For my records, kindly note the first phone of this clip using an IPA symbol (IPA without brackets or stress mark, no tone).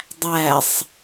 dˤ